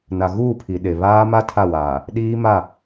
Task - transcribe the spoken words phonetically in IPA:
n a˨ ɣ uː˦˨ pʰ i˨ ɗ e˨ β aː˦ m a˦ tʰ a˦˨ w aː˨ | ɗ iː˦ m a˦˨

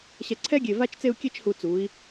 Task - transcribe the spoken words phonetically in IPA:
ɕ ɛ˧˩ ǀʰ ɛ˥ ɡʲ e˧˩ v a˥ t͡ʃ t͡s e˥˧ u̯ kʲ e˥ t͡ʃ h u˧˩ t͡s u˩˧ i̯

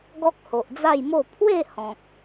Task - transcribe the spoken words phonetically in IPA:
ɡ ɔ˦ k̚ h o˨ ʔ d͡z a˥˧ j m o˥˧ pʰ w e˥˧ h ɔ̃˨ k̚

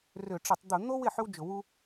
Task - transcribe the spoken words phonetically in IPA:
r ʏ˧˩˧ ʈ͡ʂ ɪ˧˩˧ tˤ d̪ ʊ˧˩˧ n̪ o˥ w ɪ˩˧˩ ħ ʏ˥ w d͡ʒ ʊ˧˩˧ w u˥

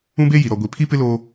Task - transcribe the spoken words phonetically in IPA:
ũ˦ b e˦ j i˨ ɾ ɔ˨ ɡʷ i˨ pʰ i˦ p ɪ˦ l oː˦

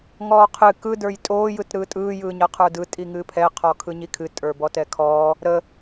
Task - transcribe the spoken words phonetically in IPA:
ŋ ɔː qʰ ɨ k ɯ d ə˞ j tʼ oː j ɯ t ɾ ɯː tʼ ɯː j ɯː ɲ ɤ qʰ ə˞ d ɯ tʼ i ŋ ɨː pʰ ɛ qʰ ɔ kʰ ɯ ɲ i kʰ ɨ tʼ ə˞ b ɔ t ɛ kʰ ɔː | ɾ ə

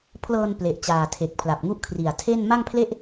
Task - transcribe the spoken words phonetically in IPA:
pʰ l ɤː˧ n p l e˨˩ ʔ t͡ɕ aː˨˩ tʰ e˨˩ k̚ pʰ l a˨˩ p̚ ŋ u˦˥ ʔ kʰ r i˨˩ a̯ tʰ e˥˩ n m a˥˩ ŋ pʰ l e˥˩ ʔ

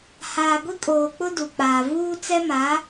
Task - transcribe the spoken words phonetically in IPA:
h aː˨ ɡʷ i˦ kʼ oː˨ k͡p ʊ˦ d u˨ k͡p aː˨ v uː˦ t͡s ɛ˦ m a˨˦

